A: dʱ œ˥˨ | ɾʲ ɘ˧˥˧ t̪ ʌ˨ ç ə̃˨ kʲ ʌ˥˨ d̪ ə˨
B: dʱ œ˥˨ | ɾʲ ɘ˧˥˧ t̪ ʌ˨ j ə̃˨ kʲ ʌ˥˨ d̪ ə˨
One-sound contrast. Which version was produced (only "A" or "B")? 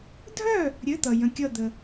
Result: B